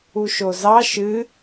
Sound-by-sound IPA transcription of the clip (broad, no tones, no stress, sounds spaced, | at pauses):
u ʃ o z ɑ ʃ ɨ